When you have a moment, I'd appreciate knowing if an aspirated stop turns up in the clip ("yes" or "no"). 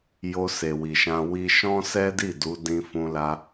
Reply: no